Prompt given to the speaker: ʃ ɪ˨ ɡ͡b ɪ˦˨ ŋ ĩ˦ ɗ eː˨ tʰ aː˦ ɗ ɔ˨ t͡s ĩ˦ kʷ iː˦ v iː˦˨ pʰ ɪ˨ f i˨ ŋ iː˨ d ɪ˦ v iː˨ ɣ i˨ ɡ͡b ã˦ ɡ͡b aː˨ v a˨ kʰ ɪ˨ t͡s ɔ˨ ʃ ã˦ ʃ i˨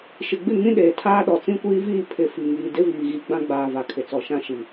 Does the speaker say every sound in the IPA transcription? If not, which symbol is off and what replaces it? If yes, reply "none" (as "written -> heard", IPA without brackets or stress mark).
none